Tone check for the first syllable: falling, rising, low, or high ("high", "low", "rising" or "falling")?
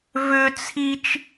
high